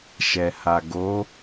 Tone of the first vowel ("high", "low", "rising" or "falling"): low